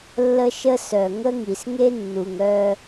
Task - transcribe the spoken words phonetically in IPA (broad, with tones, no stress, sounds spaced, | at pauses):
lː ə˦ ʃ ə˦ s œ˨ ŋ ə˦ ŋ i˨ s ŋ e˦ nː u˨ ŋ œ˦